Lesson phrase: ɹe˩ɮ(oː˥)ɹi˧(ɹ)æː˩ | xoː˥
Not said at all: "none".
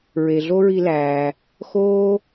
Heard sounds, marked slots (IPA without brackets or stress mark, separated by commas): o˥, l